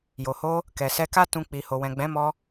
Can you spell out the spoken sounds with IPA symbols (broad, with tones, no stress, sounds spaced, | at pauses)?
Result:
j o˨ h o˧ | k ɛ˨ s ɛ˧ k a˦ t ũ˧ k͡p i˧ h o˨ w ɛ̃˨ ɡ͡b ɛ̃˨˦ m ɔ˧